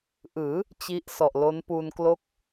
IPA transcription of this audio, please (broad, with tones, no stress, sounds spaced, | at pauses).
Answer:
ʔ ɯː˩˦ | t͡ɕ i˦˥ ʔ s ɔ˨˩ ʔ l o˦˥ n p uː˧ n k l o˦˥ k̚